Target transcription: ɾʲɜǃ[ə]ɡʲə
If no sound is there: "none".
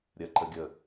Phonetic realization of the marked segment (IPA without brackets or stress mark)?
ə